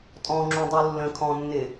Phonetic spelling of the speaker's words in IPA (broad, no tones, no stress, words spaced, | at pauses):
tʼɔ̃ŋ͡ǁũdˤu lːə̃kʰɔ̃nːɪ